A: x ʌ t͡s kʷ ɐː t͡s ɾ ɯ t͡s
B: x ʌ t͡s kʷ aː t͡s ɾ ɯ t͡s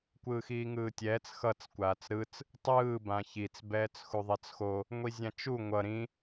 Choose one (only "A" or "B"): B